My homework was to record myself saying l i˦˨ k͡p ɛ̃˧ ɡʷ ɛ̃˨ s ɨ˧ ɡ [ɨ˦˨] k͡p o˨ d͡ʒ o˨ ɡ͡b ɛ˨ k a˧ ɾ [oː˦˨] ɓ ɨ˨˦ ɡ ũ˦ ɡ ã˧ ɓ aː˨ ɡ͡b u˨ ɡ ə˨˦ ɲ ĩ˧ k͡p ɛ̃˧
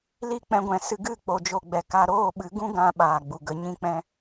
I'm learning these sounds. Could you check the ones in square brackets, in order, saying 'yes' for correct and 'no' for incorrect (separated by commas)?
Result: yes, yes